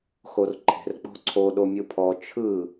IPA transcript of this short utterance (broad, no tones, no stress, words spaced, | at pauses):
xorǃʰe̤r k͡pɔ̤ǀʰo ɗomʲɯpʰɔ t͡ʃʰɯ